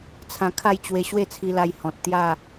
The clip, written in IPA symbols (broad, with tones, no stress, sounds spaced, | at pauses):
t͡sʰ ã˧ kʰ a˥˧ j t͡ɕ w e˧ ɕ w e˥˧ t͡sʰ i˧ l a˧ j h ɔ̃˨ t̚ t̪ j a˥˧